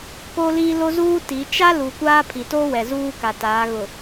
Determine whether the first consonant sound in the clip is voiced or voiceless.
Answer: voiceless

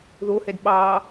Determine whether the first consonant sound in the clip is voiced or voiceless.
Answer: voiced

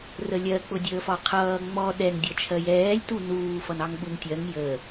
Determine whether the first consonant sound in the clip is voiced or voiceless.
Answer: voiced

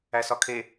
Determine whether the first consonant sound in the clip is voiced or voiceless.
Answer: voiceless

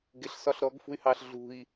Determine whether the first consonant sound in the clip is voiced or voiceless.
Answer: voiced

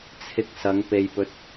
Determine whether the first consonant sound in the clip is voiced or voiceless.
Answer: voiceless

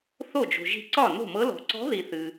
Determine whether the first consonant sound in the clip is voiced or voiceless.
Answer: voiceless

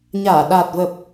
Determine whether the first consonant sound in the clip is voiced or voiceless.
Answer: voiced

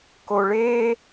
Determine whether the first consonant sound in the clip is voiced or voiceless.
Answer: voiceless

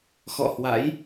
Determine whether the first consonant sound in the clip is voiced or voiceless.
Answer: voiceless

